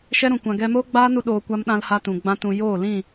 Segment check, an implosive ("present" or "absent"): present